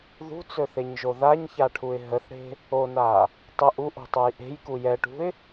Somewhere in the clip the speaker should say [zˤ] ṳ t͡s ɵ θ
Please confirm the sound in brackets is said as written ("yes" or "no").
no